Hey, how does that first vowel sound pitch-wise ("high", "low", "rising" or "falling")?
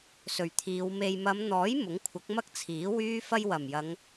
low